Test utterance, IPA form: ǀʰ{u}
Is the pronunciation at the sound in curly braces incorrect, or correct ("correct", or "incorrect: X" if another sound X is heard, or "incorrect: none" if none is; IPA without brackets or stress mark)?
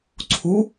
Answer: correct